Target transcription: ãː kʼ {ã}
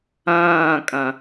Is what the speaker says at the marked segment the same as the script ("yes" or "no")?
yes